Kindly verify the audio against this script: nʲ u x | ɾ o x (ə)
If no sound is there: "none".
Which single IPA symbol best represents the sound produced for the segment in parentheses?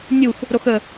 ə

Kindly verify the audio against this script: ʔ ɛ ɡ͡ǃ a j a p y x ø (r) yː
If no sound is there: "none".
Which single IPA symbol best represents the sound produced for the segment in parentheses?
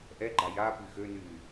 n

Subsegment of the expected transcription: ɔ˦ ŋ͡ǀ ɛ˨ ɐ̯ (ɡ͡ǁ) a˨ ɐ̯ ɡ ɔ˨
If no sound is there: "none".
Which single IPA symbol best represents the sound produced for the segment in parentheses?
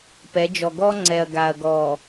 ɡ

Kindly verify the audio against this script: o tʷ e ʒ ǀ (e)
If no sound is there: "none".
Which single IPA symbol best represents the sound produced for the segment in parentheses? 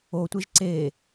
e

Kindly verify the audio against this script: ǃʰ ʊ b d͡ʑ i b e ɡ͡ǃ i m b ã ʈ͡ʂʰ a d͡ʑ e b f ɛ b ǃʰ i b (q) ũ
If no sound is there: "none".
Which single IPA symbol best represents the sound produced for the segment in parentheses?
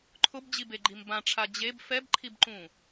ǃ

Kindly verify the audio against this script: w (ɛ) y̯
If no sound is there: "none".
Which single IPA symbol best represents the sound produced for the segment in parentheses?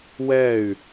ɛ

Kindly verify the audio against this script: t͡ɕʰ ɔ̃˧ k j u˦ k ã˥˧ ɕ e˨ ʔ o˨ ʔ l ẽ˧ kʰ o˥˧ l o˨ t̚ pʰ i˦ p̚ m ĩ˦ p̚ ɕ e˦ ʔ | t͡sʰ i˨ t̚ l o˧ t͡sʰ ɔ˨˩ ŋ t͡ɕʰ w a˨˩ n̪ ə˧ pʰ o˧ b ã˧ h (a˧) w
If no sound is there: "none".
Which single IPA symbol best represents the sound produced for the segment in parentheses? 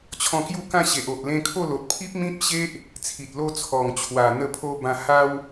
a˦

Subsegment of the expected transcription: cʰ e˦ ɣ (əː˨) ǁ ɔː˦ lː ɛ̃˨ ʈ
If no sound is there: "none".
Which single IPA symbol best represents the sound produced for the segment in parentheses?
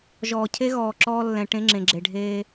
ɔː˨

